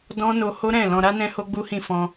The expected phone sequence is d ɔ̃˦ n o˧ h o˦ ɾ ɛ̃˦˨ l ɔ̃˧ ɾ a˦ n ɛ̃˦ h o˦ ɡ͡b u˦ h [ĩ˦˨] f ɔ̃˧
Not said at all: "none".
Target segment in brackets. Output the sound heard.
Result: ĩ˦˨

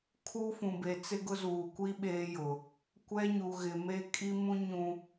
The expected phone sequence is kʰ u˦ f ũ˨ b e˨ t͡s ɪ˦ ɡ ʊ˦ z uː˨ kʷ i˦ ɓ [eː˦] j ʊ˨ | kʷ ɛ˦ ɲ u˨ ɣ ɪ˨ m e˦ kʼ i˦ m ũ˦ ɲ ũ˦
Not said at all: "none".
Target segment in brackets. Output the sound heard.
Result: eː˦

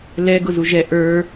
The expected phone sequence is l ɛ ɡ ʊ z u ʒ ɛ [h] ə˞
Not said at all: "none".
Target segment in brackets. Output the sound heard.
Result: ʔ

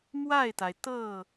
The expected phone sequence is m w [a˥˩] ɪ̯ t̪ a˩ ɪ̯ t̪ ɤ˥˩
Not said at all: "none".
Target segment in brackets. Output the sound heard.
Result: a˥˩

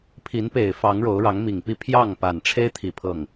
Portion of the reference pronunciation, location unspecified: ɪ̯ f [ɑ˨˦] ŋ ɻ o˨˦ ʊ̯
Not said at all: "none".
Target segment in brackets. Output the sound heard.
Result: ɑ˨˦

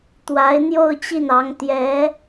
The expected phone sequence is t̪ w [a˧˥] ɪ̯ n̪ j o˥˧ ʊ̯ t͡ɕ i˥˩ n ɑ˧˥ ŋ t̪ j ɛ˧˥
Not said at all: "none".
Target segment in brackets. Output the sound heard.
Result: a˧˥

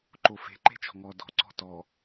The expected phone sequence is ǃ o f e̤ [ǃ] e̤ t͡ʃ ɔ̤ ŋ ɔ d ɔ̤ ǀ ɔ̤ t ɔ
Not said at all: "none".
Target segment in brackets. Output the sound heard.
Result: ǃ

